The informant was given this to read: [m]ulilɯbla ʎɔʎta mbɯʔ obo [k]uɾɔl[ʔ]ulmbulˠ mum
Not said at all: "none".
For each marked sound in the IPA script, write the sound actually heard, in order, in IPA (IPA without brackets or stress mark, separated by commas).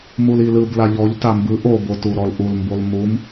m, t, ʔ